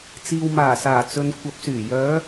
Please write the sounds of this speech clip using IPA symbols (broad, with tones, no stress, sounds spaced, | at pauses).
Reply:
t͡s iː˨ w m aː˨˩ s aː˨˩ t͡s ɵ˨ n kʷʰ ɐ˨ p̚ s yː˨˩ j œː˨˧